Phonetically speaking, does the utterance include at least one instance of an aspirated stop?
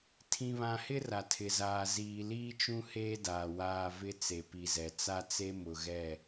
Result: yes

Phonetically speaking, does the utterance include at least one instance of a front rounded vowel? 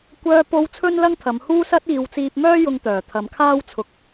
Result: yes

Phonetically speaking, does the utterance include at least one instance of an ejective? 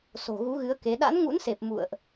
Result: no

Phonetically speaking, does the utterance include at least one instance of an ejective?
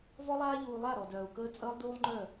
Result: yes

